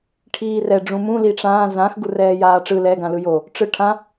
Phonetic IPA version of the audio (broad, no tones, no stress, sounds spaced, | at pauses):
ʈʰ iː r ɛ ɖ͡ʐ ũ m ũ l i ʈ͡ʂ ãː z ã x ɡ u r ɛː j aː ʈ͡ʂ ɯ l ɛ ɡ ã l ɯ j o | ʈ͡ʂ ɯ ʈʰ ã